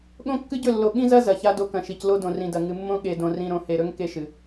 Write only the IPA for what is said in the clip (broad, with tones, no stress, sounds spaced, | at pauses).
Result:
ɠ õ˦ kː ɨ˦ ɟ ɵ˦˨ lː o˨ ɠ ĩ˦ z ɐ˦ z ɐ˨ ç a˦ d o˦ k ɐ̃˨ ʃ i˨ c l o˦ d õ˨ r ĩ˨ d ɐ˨ ŋ ɨ˨ mː õ˦ ɠ e˨ d õ˨ r ĩ˨ ɾ õ˨ h e˨ ɾ ɵ˦ ŋ k e˦ ʃ ɨ˨